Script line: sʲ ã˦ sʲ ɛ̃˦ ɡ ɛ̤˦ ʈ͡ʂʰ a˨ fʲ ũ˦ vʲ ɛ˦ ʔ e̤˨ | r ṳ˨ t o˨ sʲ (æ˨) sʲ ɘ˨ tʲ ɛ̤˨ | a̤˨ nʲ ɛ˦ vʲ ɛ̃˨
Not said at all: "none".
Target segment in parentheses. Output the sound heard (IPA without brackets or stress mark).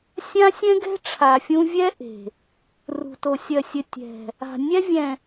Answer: ɜ˨